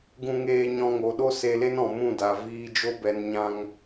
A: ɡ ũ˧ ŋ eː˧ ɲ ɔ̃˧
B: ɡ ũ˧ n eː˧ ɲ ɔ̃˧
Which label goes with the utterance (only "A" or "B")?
A